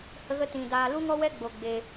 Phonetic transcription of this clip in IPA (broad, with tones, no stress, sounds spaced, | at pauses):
h ə˦ ɣ ə˦ t ĩ˧ d aː˧ l u˦ ŋ ɔ˦ w ɛ˦ ɡ͡b o˧ ɡ͡b e˧